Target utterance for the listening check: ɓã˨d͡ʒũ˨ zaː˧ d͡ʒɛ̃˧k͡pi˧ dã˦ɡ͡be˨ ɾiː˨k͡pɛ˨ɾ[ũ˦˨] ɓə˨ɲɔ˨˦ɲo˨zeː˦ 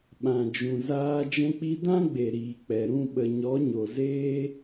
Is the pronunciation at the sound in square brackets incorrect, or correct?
correct